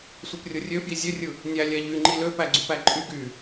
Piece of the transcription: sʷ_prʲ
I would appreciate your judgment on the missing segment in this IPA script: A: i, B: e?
B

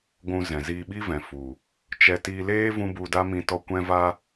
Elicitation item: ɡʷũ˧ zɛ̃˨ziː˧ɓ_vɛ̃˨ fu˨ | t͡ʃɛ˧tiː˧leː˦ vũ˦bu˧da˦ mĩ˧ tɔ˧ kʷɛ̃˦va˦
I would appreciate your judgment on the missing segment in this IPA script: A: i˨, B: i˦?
B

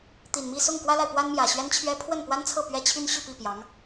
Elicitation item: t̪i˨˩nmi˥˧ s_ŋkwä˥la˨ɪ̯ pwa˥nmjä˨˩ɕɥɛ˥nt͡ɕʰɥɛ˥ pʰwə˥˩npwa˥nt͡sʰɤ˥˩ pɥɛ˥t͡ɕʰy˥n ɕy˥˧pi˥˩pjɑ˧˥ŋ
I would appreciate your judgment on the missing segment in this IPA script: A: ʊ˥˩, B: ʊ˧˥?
A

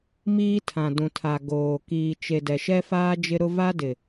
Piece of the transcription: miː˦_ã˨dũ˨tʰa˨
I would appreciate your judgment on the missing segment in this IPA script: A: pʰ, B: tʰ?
B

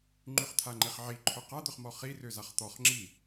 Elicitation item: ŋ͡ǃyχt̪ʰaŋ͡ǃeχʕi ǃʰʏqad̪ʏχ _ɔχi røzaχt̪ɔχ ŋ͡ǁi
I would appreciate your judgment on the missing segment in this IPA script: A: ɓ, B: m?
B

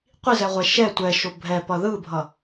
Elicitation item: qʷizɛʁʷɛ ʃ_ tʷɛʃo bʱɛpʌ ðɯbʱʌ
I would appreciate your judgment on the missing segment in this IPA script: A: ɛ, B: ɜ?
A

